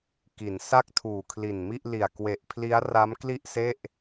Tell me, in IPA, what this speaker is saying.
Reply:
ki˩˦nsa˥˩k̚ tʰuː˨˩kʰli˨˩nmi˥˩ʔ li˨˩a̯ kwe˨˩ʔpʰli˦˥a̯ra˦˥m kli˥˩ʔse˥˩ʔ

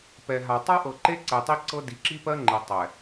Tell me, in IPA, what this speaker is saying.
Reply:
pɛ˨ɦa˨ tˤa˦ʔɤ˨ǃe˦ ǀɛ˨tˤi˦ǀɤ˦ di˨ǁi˦pɜ˦ŋ͡ǃe˨ tˤɛ˨

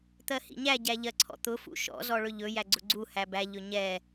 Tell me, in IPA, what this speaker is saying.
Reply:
t̪ɜhḭɲæ ɟæʎɜǀʰɔ̰t̪ʊ fṵʃɔ̰ zɔɭɵʎɵ jæɡ͡ǀʊɡ͡ǀu hæbæ ʎɵɲɛ

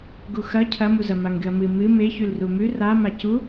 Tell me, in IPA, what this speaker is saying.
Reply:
ɡuxɐ cʰɐmuzɐ maŋɡɨɐ̯mɨ mɨ me çʉlrumʉ ra macu

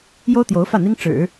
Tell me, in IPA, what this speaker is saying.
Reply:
jo˥ʊ̯t̪jo˧˥ʊ̯ fä˥˩n̪i˥ŋ ʈ͡ʂɻ̩˨˩˦

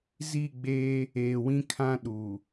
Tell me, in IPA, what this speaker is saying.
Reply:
zi˦˨ɡ͡beː˦ | eː˨wĩ˦kʰã˦ɗu˨

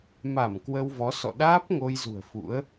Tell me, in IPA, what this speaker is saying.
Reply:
ma˧˩m kwə˧wvɔ˨˦ sɔ̰˧˨ ɗaː˦˥p̚ŋo˧jzṳ˨˩ə̯ fṵ˧˥ə̯

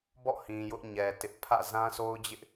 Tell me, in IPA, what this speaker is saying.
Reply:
bɔ̰˦˨hĩ˨ jʊ˦ʔɲɛ˨ tɪ˦ʔ pʰä̰˦˨ zã˦sʰo˦ʊ̯d͡ʑɪ˦ʔ

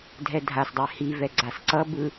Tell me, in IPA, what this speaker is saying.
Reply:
dʱɛdʱasdˤɛ hivɛ ɡ͡ǀasǀʌbɯ

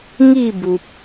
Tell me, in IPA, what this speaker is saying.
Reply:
ŋi˥˧bu˨p̚

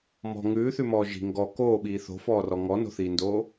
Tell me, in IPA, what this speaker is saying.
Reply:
mɔ̤ ŋʉːθʉmɔː ʒi̤ ŋɡɔ koːɓiː θo̤fɔːrɔ ŋɔno̤θiːndoː

